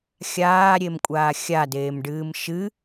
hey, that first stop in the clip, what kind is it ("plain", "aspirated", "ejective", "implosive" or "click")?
ejective